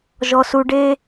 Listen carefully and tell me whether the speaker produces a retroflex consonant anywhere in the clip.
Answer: yes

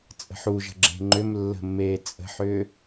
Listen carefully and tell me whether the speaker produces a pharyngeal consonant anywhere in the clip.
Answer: yes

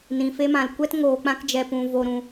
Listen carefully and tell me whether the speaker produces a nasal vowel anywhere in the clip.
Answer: yes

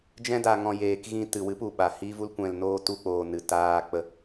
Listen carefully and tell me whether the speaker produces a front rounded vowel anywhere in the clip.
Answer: no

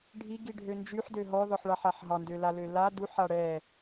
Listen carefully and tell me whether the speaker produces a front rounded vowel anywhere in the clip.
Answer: yes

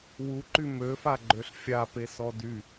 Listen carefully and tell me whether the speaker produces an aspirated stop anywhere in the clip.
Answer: no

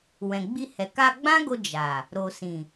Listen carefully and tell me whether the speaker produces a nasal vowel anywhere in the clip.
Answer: yes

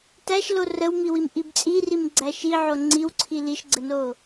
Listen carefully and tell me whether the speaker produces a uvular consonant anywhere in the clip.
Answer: no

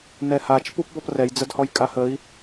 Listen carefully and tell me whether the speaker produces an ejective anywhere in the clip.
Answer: yes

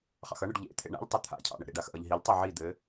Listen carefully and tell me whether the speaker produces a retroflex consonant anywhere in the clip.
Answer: yes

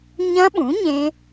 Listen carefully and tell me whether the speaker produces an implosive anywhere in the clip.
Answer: yes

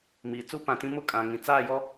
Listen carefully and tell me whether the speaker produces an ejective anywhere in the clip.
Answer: yes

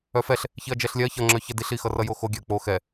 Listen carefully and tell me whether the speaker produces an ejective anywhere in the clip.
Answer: no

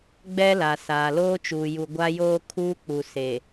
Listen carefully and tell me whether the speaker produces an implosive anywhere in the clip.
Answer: no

